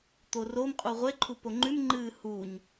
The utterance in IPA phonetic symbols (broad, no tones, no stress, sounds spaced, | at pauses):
t̪ o r o m qʼ u ʁʷ e ǃʰ u p o ŋ͡ǃ ʉ m ŋ͡ǃ ɨː h u ɲ